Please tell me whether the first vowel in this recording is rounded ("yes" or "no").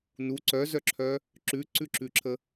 yes